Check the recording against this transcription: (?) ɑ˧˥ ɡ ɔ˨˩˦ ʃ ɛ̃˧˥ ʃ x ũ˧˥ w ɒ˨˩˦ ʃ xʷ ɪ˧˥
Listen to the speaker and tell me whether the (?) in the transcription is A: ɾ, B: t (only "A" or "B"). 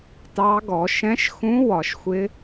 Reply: B